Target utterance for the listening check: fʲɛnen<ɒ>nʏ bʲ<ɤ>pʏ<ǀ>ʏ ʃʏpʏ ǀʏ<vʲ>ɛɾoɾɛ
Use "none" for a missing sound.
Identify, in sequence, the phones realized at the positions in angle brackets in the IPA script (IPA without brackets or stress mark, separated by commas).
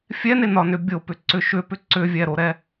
ɒ, o, ǀ, vʲ